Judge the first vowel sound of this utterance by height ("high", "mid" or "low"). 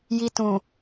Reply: high